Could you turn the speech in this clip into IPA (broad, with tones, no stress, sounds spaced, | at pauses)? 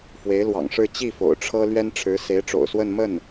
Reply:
f w e˧˥ ɪ̯ l w ɑ̰˨˩ ŋ ʂ ɻ̩˥˧ t͡ɕ i˥˩ f o̰˨˩ ʊ̯ ʈ͡ʂʰ ɤ˥ l ɥ ɛ˥ n ʈ͡ʂʰ ɻ̩˧˥ s e˧˥ ɪ̯ ʈ͡ʂ o̰˨˩ ʊ̯ s w ə˥˧ n m ə˥˩ n